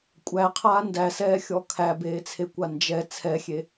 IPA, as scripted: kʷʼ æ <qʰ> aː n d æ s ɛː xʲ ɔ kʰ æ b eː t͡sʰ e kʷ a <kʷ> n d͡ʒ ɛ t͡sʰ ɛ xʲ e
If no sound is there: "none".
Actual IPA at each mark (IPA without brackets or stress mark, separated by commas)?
qʰ, none